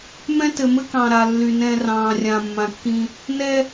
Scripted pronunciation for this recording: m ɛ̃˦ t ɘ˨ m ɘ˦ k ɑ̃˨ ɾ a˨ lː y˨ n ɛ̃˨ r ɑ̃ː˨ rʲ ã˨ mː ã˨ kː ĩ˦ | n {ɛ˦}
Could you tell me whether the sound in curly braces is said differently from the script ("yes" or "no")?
no